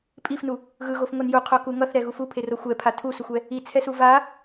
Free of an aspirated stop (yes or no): no